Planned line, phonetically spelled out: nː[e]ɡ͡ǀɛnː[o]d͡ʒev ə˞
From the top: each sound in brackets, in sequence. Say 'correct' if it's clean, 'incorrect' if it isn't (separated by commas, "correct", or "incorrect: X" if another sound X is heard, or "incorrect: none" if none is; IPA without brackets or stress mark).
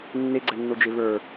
correct, correct